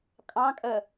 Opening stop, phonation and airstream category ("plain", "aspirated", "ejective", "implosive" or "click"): ejective